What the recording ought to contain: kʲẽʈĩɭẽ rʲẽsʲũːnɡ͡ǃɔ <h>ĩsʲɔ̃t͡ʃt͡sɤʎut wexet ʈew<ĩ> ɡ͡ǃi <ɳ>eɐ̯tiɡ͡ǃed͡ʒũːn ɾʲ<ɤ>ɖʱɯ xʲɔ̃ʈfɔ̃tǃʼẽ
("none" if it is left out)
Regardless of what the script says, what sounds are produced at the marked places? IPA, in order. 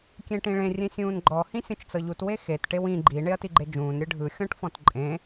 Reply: h, ĩ, ɳ, ɯ

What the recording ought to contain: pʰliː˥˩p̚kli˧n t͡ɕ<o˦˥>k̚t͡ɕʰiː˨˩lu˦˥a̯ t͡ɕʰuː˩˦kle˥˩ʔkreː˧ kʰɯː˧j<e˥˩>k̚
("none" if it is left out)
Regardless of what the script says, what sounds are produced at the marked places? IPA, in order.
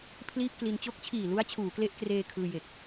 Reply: o˦˥, e˨˩

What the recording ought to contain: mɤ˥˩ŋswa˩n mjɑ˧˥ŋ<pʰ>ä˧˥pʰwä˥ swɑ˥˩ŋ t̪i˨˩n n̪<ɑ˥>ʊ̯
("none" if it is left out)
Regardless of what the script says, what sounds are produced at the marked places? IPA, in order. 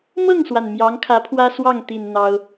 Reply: kʰ, ɑ˥

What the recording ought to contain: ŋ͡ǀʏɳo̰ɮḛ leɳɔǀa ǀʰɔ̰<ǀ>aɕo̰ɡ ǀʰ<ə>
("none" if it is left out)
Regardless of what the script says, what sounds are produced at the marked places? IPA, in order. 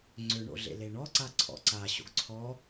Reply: ǀ, ɔ

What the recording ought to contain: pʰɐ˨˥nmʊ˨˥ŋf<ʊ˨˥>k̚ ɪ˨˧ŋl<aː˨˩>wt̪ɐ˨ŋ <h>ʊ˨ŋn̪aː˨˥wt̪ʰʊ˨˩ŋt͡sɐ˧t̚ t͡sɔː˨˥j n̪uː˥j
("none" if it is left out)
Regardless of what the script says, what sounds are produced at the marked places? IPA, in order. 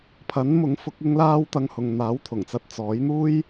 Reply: ʊ˨˥, aː˧, h

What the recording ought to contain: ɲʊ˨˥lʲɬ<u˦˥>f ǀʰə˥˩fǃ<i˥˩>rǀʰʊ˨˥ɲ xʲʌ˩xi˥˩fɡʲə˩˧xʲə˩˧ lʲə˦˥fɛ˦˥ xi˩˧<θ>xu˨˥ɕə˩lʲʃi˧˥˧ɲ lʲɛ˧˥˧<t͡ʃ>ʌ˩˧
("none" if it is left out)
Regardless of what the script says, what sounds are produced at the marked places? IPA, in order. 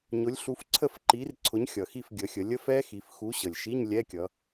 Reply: u˨˥, i˨˥, f, kʲ

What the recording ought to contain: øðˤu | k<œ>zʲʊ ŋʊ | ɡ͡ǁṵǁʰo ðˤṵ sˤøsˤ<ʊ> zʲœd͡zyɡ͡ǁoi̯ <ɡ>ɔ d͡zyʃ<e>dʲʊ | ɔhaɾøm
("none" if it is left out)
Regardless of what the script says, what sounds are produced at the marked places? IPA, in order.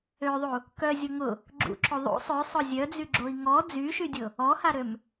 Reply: œ, ʊ, ŋ, y

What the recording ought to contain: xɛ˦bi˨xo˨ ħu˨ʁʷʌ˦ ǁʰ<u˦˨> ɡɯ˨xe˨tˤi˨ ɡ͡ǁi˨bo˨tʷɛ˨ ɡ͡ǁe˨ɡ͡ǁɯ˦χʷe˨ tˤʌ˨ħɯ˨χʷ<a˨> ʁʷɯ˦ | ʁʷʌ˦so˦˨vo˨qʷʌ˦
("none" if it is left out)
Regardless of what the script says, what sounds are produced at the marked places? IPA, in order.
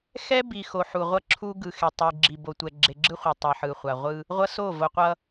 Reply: u˦, a˨

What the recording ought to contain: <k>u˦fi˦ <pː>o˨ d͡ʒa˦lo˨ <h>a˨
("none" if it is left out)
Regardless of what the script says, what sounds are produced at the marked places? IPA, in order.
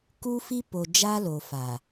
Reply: k, p, f

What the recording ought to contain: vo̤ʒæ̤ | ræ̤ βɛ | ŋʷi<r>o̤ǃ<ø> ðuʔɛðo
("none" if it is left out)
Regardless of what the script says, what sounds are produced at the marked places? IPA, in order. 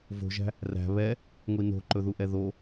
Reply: n, ɵ

